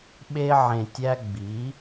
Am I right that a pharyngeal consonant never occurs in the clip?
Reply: no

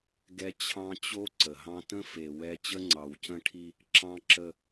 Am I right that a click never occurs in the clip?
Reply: no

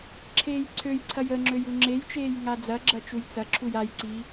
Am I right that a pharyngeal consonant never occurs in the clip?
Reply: yes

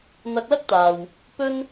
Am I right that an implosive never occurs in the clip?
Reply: yes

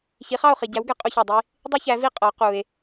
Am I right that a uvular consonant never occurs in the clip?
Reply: no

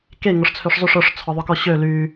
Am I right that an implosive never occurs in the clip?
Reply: yes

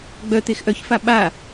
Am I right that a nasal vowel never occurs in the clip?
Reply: yes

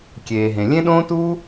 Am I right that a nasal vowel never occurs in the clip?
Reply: no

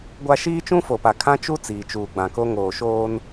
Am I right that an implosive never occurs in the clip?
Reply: yes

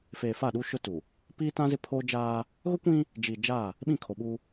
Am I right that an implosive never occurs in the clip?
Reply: no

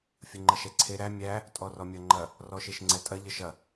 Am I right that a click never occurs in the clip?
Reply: no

